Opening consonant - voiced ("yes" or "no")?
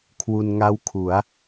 no